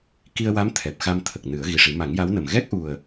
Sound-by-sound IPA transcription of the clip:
k i˧ ə̯ w a˧˥ m t̪ʰ ɛ˨˩ p̚ x a˧ m t̪ʰ ə˨˩ k̚ n ɨ˨˩˦ ə̯ ɣ i˨˩ ʂ i˨˩˦ m a˨˩˦ ŋ j a˧˥ w n ə˨˩ m ɣ ɛ˦˥ k̚ ʔ u˨˩ ə̯

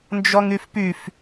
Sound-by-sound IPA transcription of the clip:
n d͡ʒ ɔ ŋ y f p y f

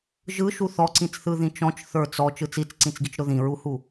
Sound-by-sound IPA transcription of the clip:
ʒ ɯ ʃ u θ ɔ ǀ ĩ t͡s θ ɯ ð ĩ t͡ʃ ɔ̃ t͡ʃ θ ə˞ t͡s ɔ t͡ʃ ɯ t͡s i t͡s ǀ ĩ t͡s ɡ i t͡ʃ ɾ ʊ ð ĩ ɹ u h u

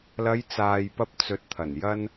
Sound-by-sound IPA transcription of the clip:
l ɐ˨˧ j t͡s aː˨ j p ɐ˧ p̚ t͡s ɵ˨ t̚ t̪ʰ ɐ˨˩ n j ɐ˧ n

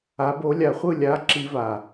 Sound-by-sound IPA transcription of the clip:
a˨˦ b o˨˦ lʲ a˧˩ χʷ ɯ˥˨ lʲ a˨˦ ǁ i˦˥ v a˧˩

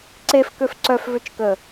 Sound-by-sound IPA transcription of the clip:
ǀ e f k ø f ǀ œ f v ø t͡ʃ k ə

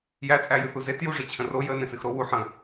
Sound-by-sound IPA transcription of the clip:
j æ t͡sʼ æ j ɨ θ u z e t j u ʐ e t͡ɕʰ ə̃ r o j ə n ẽ s ɨ x ɾ o w u ħ ə̃

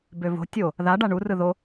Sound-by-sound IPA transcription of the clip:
b ø v o̤ tʲ o | ð a ɖ a ɳ u r ɯ ð o

